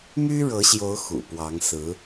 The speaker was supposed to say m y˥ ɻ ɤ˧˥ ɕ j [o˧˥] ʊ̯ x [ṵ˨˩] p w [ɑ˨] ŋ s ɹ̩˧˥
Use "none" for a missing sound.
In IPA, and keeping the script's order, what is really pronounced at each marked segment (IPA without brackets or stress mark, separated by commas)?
o˧˥, ṵ˨˩, ɑ˧˥